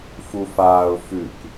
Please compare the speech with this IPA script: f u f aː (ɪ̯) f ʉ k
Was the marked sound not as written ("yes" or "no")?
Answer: yes